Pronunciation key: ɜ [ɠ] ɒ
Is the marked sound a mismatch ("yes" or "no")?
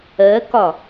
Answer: yes